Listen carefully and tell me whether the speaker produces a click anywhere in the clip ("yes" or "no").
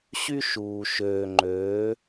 yes